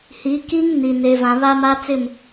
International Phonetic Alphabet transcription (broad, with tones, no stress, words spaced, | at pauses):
hi˨˦ki˦ŋ ni˨ ne˨vã˨ βa˦ma˦t͡sɪ˦˨m